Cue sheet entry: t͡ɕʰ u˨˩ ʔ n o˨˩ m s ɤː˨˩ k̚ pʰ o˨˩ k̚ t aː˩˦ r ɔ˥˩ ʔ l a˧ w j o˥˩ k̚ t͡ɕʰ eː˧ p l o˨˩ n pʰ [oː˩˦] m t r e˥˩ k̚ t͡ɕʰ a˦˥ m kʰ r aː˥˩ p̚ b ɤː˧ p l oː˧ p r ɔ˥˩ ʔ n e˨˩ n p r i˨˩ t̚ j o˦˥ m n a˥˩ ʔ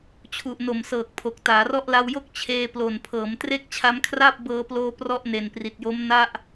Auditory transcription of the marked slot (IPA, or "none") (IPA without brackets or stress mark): ɤː˩˦